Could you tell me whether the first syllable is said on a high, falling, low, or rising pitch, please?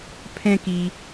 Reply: high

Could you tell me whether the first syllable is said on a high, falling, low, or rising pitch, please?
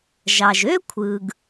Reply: low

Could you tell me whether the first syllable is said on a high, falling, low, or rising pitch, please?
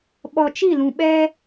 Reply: low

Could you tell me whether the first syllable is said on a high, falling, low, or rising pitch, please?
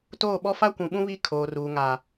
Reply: falling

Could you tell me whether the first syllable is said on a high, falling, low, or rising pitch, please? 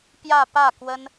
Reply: falling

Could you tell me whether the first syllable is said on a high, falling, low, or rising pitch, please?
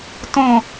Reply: falling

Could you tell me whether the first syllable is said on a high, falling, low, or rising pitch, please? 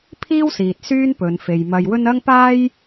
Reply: high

